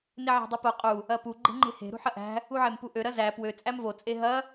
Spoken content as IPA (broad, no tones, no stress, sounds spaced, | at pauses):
n e ʕ æ̤ dˤ u p o qʼ u | ɐ p u ɡ͡ǃ e̤ ŋ͡ǃ e̤ h e̤ ɾ ṳ ħ ɐ ʔ æ̤ | u ʕ e m p u ʔ ø ɾ ɐ z æ p w ø t͡sʼ æ m v o t͡sʼ e ɦ ɐ